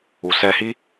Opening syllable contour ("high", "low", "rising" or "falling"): low